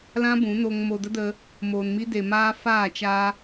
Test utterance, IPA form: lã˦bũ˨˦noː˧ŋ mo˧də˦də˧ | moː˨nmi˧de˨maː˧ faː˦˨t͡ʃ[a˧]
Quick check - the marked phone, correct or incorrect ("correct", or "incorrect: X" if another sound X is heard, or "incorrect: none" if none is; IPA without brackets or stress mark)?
correct